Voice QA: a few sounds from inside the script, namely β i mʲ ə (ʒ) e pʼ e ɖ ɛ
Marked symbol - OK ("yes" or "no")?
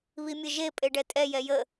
yes